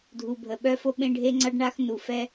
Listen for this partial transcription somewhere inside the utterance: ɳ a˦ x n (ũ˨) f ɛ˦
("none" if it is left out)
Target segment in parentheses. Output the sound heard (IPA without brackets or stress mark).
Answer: u˨